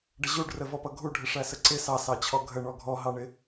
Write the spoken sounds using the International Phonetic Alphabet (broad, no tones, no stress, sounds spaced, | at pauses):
ɖ ə ʑ u ɖ r ə v ɔ p ʌ ɡʱ u ɖʱ ɪ ʂ æ s ə ǀ ɪ s ɑ s ɑ t͡ɕʰ ɔ ɡʱ ə ɳ ɔ ɡʱ ɔ ɦ ɑ ɳ ɪ